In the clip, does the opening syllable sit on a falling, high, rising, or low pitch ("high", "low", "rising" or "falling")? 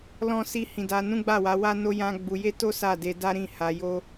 high